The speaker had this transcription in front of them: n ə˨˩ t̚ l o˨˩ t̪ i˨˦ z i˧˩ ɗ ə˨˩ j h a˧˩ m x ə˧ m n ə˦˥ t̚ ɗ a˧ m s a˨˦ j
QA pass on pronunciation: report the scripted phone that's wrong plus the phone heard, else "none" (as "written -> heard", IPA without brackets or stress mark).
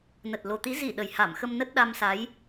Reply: none